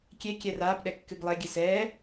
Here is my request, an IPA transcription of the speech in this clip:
kʲ e kʲ ɛ r aː p ɗ ɛ kː ɨ ɡ lˠ e ɡʲ ɨ s ɛː

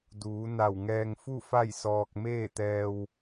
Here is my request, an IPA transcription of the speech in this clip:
d uː˩˧ n a˧˩ w ŋ ɛː˧ ŋ f u˥˨ f a˥˨ j s ɔː˧ k̚ m eː˥˨ t̪ ɛː˧ w

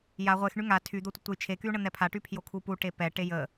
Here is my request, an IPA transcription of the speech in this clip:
j a ʁʷ e x ɳ y ŋ a tʰ y d̪ o tʷ ə tʷ ɛ j t͡ʃʰ e k y u̯ ɳ ə n̪ ɛ pʰ a ʈ y pʰ j o kʰ u p u ʈ e p ɛ ʈ e j ə

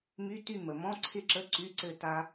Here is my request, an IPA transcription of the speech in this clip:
m y˧˥˧ t y˥˨ m ə˩ m ɔ̃˧˥˧ ǀʰ ɪ˥˨ ǁ ə˧˥˧ ǀ y˧˥˧ ǀ ɘ˥˨ t a˦˥

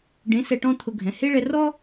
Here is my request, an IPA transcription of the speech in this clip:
ɖ ẽ˨˥ s ɛ˧ ʈ ɔ̃˥ t̪ʰ ʊ˧ ɡʱ ɛ̃˩˧˩ h e˥ ɭ ɛ˧ r ɔ˥

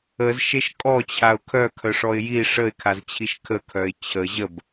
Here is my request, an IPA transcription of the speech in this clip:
ə z ʃ e ʃ kʼ ɔ t͡ɕʰ a ʊ̯ kʰ œ kʰ œ ʂ ɔ ɪ̯ j i ʂ ə ɪ̯ kʰ a z t͡ɕʰ i ʃ kʰ ə kʰ œ ɪ̯ t͡ɕʰ ə ʑ ə b

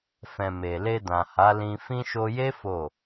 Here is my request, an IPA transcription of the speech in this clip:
f ɛ̃˨ m e˨ l e˧ d ã˨ h a˨˦ l ĩ˧ f ĩ˧ ʃ o˧ j e˦ f o˦˨

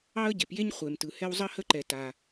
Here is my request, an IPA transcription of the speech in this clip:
ɑ˥ ə̯ ɟ e˩ p j e˥ ɲ χʷ e˩ m t ɯ˩ h ɛ˥ w zˤ ə˥ h ə˥ ǃ ɛ˩ t a˩

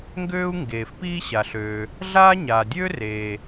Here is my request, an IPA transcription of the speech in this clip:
ŋ ɡ øː˥ u̯ ŋ ɡ eː˩ f p iː˥ ɕ a˩ ɬ øː˩ | ɮ aː˥ ɲ aː˩ dʲ øː˥ r eː˩

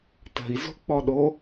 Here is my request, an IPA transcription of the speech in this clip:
t ə̤ i̯ z o̤ k͡p ɔ ɗ o

